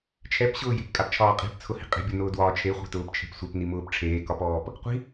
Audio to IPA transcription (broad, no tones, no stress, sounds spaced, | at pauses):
t͡ʃʰ ɛ p ɕ ʊː j e̤ p kʼ a p t͡ʃʰ ɒː qʼ i̤ p t͡sʰ ʊ h i̤ qʼ e̤ bʲ ɤ n ʊː d w ɒː t͡ʃʰ e χʷ e̤ t ʊː p t͡ʃʰ e̤ p sʷ ɛ p n i m ʊː p ʈ͡ʂʰ eː k ɒ p ɔː p | qʷ i̤